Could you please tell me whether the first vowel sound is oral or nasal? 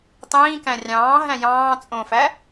nasal